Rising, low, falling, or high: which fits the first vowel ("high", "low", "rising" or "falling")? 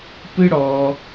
high